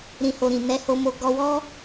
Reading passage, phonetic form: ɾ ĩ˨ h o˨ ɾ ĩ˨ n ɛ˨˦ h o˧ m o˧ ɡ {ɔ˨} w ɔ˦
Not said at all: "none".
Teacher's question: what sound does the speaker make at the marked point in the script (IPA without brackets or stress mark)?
ɔ˧